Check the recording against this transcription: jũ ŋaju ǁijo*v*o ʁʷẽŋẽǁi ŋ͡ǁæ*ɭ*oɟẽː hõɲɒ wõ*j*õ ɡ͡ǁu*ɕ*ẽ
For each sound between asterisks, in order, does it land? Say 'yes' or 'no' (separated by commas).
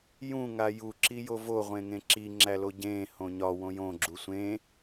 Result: yes, no, yes, no